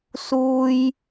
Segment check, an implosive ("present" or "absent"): absent